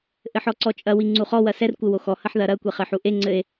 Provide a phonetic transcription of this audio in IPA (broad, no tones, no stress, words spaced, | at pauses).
ʔɘħɔǀɔt͡ʃʼɐ wiŋ͡ǀuχɔ wɐsɛr kʷɘwoxɔ hɐħðɐɾɐ kʷeχɘħuʔe ŋ͡ǀɘe̯